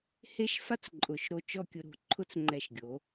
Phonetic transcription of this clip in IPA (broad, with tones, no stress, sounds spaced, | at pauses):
h e˥ ʃ f a˥ t͡s ǃʼ ʊ˩˧ ʃ ɾ o˧ t͡ʃ ɔ˥˧ kʲ ʊ˧ ɾ o̤˧˩ ǃʰ ʊ˥ t͡s ŋ͡ǃ ɛ˧˩ ʃ ɡʲ o˩˧